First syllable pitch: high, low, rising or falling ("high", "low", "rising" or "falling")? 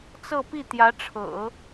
falling